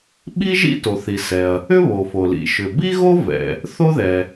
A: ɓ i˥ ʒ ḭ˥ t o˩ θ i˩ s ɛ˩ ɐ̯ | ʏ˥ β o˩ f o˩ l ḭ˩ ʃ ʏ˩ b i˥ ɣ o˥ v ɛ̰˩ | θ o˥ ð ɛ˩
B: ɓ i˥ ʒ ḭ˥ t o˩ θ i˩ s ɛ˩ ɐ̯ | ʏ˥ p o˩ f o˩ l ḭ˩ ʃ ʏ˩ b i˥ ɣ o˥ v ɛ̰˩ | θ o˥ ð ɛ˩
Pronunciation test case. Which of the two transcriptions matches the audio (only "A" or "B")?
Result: A